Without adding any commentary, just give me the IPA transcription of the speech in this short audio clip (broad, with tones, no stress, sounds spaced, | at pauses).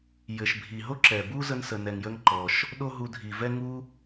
j ɘ˩ ʃ bʱ i˩ ɦ o˥ ǁ ɛ˩ b u˦ z ə˥ n s ə˩ n ɛ˩ ŋ j ə˦ ŋ ǃ ɔ˩ ʃ | ɗ o˦ ɦ u˨ dʱ i˩ v ɛ˦ ŋ u˥